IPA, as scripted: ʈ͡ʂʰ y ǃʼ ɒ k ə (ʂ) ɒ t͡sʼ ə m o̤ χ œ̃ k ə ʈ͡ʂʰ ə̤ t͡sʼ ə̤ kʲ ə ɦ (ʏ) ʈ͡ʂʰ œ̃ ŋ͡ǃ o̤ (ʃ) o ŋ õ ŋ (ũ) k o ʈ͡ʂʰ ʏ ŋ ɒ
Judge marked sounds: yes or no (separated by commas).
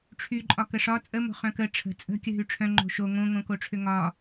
yes, no, yes, no